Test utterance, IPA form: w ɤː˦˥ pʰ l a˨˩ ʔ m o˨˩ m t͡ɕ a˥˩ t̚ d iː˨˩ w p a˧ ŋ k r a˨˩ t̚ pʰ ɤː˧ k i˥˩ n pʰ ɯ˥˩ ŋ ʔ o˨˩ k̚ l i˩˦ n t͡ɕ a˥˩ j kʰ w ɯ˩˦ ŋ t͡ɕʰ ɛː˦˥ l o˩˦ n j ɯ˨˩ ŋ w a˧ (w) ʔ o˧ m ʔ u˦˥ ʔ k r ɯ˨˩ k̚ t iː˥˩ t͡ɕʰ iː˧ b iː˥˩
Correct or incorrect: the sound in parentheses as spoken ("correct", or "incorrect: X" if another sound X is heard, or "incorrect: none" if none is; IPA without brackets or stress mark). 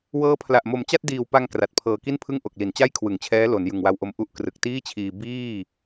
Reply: correct